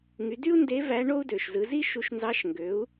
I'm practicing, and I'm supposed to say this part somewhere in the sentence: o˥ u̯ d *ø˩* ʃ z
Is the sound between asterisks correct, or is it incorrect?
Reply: correct